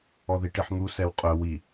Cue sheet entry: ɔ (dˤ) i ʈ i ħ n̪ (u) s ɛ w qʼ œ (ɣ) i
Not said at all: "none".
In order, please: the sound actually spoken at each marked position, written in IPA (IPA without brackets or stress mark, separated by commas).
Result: ð, u, w